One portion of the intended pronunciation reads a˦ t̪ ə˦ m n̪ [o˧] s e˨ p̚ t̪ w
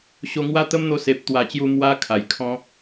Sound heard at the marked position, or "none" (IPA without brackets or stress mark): o˧